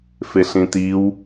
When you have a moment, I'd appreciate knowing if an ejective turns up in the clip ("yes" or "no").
no